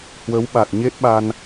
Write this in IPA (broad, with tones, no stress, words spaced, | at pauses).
hwə˨˦wɓa˨˩t̚ ɲe˦˥t̚ɓa˧n